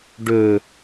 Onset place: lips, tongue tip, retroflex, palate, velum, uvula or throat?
retroflex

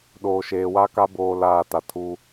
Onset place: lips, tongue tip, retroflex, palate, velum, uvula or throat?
tongue tip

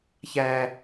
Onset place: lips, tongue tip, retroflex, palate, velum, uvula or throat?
palate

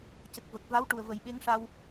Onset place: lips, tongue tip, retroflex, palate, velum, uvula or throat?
palate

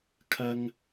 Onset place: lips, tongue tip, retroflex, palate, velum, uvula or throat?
velum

